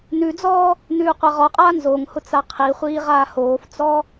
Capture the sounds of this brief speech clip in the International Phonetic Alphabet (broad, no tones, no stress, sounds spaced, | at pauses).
n ʉ d͡z ɔː | n ʉː qʷ a ʁ ɔ qʼ aː n z o ŋ h ʊ t͡s a qʰ i χʷ iː ʁ aː h oː f t͡s ɔ